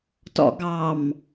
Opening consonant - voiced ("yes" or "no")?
no